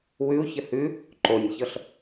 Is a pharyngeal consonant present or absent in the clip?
absent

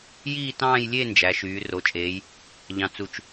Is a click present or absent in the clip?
absent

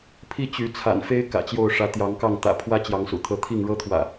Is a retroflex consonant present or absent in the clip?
present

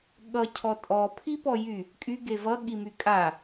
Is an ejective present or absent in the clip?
present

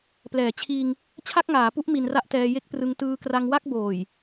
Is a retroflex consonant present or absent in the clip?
absent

